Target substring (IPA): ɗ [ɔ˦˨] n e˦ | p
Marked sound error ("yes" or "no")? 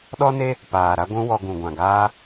yes